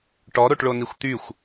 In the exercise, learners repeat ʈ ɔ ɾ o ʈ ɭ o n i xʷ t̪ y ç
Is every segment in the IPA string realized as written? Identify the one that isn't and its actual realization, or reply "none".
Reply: ç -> xʷ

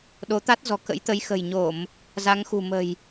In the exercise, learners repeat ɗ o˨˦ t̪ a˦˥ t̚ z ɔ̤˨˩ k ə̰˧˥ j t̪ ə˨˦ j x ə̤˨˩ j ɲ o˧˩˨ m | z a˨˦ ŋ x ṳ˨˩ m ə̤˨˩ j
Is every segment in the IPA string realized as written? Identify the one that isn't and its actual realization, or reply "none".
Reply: none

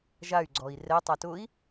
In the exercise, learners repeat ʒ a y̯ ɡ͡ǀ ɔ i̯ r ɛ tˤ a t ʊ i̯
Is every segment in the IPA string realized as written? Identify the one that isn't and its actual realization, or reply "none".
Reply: none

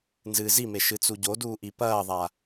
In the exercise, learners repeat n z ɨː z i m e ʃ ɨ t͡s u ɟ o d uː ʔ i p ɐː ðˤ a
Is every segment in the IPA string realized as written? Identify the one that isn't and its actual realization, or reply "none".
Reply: none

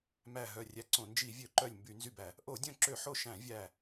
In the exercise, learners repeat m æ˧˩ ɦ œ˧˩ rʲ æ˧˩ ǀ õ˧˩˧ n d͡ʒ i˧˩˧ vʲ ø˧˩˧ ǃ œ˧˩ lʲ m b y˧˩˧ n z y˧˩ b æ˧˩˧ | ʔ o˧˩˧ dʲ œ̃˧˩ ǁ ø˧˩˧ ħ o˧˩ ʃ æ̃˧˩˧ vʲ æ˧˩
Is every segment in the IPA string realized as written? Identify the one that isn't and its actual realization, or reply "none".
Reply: none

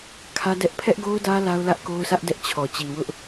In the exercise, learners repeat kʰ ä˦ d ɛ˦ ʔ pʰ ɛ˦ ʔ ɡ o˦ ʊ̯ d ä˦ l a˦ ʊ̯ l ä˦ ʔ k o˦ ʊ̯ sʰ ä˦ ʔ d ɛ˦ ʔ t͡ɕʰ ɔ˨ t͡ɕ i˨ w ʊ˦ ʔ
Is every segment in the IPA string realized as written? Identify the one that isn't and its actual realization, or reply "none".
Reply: none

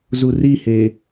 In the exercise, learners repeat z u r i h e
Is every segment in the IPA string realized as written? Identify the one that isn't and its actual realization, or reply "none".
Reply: none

